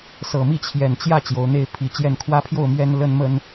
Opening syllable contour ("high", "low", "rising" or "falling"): low